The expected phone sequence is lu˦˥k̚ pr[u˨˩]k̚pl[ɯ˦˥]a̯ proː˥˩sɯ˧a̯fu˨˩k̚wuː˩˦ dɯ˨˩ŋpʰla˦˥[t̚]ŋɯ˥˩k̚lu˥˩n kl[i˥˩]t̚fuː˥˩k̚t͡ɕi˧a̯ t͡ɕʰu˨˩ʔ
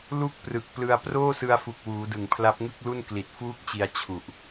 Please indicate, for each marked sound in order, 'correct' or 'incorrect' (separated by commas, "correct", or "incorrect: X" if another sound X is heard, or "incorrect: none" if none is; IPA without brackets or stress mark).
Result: incorrect: ɯ˨˩, incorrect: ɯ˧, incorrect: p̚, incorrect: i˨˩